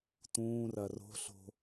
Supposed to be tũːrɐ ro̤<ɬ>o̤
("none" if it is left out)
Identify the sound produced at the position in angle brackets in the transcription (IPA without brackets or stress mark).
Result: ɬ